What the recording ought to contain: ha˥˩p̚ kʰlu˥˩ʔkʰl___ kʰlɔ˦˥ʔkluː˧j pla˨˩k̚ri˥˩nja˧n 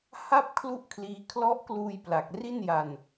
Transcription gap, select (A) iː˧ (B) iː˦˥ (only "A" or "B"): B